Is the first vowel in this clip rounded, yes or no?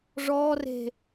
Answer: yes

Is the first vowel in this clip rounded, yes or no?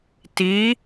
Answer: no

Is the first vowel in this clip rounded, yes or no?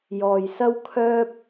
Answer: yes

